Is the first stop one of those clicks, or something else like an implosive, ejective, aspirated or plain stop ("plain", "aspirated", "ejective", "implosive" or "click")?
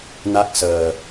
plain